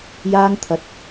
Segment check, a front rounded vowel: absent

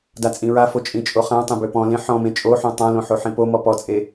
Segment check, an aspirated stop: absent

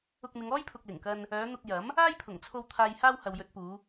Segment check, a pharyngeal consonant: absent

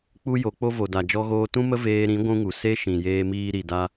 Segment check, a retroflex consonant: absent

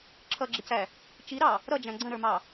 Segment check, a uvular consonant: absent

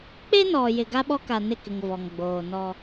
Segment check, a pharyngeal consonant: absent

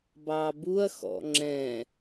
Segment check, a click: present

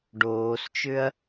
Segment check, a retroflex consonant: present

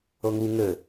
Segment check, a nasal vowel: absent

